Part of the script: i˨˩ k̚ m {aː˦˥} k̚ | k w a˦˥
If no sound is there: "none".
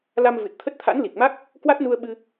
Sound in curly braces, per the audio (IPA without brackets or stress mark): a˦˥